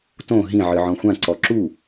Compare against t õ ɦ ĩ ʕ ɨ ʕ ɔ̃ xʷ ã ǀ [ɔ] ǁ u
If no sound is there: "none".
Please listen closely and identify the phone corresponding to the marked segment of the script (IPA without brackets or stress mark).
ɔ